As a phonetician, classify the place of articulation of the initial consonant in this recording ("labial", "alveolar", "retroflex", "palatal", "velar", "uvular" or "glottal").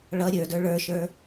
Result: retroflex